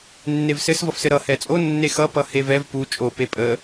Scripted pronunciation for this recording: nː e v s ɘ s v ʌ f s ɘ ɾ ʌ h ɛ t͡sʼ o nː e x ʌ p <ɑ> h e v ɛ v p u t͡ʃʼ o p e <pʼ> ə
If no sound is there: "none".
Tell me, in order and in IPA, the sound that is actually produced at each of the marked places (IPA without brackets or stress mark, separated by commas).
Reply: ʌ, pʼ